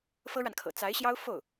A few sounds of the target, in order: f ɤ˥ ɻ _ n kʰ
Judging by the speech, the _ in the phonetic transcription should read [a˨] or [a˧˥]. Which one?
a˨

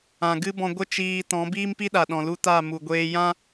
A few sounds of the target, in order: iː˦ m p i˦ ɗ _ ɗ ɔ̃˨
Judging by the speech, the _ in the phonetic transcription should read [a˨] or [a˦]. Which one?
a˨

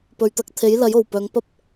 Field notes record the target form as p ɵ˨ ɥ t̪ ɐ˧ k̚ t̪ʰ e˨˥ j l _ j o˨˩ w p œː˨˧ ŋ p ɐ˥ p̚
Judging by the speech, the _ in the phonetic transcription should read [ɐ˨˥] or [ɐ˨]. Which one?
ɐ˨˥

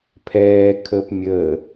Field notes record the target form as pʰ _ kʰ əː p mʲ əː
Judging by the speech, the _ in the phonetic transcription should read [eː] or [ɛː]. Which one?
ɛː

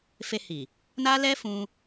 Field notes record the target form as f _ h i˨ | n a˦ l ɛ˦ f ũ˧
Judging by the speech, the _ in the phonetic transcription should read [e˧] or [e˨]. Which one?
e˧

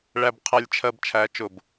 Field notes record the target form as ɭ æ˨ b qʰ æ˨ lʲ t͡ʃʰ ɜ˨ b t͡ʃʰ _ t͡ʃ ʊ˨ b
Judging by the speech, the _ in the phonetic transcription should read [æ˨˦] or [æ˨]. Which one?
æ˨˦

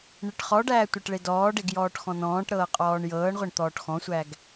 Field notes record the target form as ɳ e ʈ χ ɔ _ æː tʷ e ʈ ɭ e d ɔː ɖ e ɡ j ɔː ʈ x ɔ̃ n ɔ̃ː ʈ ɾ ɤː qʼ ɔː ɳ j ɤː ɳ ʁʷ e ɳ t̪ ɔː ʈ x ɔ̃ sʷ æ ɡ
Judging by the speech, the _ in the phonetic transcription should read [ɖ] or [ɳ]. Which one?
ɖ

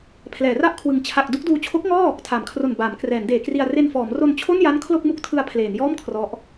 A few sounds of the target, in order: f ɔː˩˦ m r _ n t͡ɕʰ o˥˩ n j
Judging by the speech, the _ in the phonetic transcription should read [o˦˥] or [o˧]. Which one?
o˧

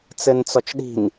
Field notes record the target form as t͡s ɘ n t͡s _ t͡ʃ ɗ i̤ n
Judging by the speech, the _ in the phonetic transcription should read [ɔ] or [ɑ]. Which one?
ɔ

